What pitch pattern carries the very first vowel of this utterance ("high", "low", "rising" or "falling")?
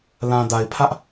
low